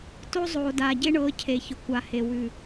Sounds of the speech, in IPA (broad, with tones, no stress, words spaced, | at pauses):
to˦zˤoː˨ daː˨ɟe˦ɳɤː˨˦ cʰe˨çʊ˨ kʷa˨he˨ wʉ˨